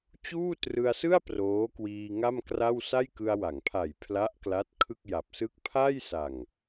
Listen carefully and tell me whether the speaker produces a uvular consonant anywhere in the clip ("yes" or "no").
no